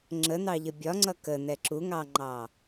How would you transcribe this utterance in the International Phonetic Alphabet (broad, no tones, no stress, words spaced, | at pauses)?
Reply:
ŋ͡ǁən̪ɑʎə bʲɒŋ͡ǀʌ kən̪ɛ ǁuŋɑŋ͡ǃɑ